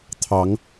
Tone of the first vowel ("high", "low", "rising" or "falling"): rising